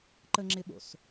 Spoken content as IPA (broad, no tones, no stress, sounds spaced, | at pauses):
ǃ ə ŋ͡ǁ ɪ ɓ o̰ s